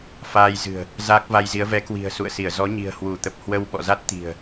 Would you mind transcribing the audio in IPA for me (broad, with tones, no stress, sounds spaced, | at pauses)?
f aː˧ j z ɨ̤˨˩ ə̯ | z a˦˥ k̚ v a˧ j z i˨˦ ə̯ v ɛ˨˦ k w i̤˨˩ ə̯ s ṵ˧˨ ə̯ s i˧˩ ə̯ z ɔ˨˦ ɲ i̤˨˩ ə̯ h w u˧˩ t̪ ə˨˩ p̚ h w ə˧ w ɓ ɔ̰˧˨ z a˦˥ t̚ t̪ i̤˨˩ ə̯